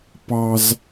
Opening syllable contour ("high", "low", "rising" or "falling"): high